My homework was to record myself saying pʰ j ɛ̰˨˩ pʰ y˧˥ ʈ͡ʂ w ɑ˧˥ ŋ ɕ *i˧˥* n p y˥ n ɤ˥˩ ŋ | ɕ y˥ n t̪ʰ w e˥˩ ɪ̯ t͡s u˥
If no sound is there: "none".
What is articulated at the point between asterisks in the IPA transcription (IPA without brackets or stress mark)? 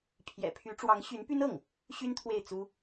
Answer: y˧˥